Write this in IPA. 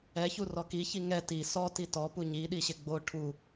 ɛçu rɔkiçi ŋɛ ti sɔ titɔpu ɲiɗiɕɪ ɡ͡bo ʈʰu

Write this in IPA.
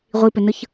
ʁʷipʏnɯç

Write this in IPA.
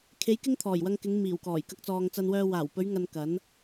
kʰe˨˧j kɪ˥ŋt̪ʰɔː˨˩jwɐ˧ŋkɪ˨˧ŋ miː˨˩wkɔː˨˩j kɐ˧k̚t͡sɔː˨ŋt͡sɐ˧nwœː˧ waː˨˩wpɵ˨˧ɥŋɐ˨n kɐ˨˥n

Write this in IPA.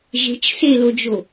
ʒe̤t͡ʃ selod͡ʒo

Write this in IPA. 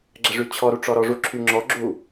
ɡ͡ǁəʐyt͡ɕʰɔɾu ʈ͡ʂɔɾɔʐuǁʰy ŋ͡ǁɔɡ͡ǁu

